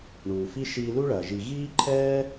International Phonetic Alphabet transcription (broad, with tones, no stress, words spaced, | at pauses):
ɳuː˩fi˥ ʃiː˧lu˥ɭɐː˩ ʒi˩ ɣiː˥ǃʰɛː˥